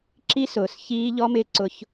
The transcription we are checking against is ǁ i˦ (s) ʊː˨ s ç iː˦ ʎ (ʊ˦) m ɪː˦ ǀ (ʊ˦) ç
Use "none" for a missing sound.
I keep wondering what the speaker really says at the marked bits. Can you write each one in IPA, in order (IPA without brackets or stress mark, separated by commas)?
s, ɔ˦, ʊ˦